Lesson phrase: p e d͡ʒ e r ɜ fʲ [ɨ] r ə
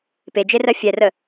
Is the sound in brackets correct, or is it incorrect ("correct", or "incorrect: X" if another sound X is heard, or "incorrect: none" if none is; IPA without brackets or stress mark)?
incorrect: ɛ